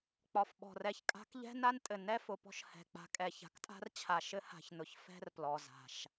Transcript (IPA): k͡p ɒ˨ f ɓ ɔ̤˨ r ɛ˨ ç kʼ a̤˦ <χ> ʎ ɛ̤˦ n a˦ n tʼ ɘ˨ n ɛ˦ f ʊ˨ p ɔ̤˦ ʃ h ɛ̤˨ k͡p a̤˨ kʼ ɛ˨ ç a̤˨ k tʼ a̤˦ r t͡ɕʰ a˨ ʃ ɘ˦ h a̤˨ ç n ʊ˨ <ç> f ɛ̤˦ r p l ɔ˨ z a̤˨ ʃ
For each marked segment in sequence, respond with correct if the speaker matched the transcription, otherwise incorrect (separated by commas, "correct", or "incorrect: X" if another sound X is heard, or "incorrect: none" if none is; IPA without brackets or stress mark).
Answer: incorrect: k, correct